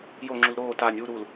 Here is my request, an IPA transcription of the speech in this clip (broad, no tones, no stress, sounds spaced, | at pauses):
j o ŋ͡ǁ u l ɾ oː t a nʲ u ɾ u l